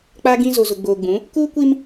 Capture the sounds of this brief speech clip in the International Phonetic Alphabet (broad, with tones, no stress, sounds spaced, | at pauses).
k͡p a˦ ɡ ĩ˦ z o˨ z ʊ˨ ɡ͡b oː˨ ɡ͡b ũ˨˦ | k uː˦ kʷ i˦ m